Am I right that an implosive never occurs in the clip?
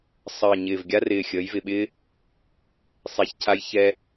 no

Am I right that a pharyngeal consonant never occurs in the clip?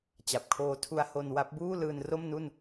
yes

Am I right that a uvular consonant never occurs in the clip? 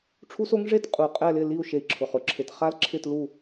no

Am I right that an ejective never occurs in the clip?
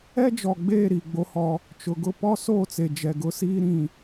yes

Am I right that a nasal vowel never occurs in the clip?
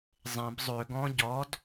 no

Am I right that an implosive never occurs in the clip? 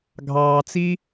yes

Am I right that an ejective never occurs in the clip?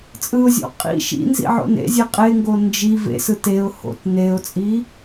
no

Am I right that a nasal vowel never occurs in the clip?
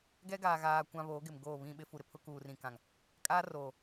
no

